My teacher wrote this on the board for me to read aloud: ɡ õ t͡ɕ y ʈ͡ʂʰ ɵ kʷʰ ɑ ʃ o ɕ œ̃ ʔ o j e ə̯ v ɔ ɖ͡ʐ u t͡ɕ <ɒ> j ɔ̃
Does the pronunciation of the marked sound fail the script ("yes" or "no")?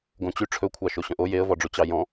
yes